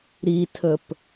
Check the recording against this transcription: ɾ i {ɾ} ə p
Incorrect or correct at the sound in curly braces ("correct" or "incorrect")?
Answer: incorrect